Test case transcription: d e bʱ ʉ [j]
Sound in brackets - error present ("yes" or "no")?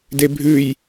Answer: no